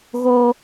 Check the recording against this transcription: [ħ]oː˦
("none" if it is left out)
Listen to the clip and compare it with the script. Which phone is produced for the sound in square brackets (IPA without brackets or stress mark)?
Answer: ɣ